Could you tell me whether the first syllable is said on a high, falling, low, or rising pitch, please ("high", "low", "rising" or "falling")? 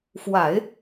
low